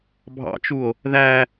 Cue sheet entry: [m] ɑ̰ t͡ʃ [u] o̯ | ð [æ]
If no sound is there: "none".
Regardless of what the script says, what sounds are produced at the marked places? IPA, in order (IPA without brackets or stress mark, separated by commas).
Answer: bʱ, u, æ